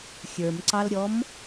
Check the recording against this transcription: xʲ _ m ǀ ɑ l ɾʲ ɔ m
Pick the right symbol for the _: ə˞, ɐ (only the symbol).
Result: ə˞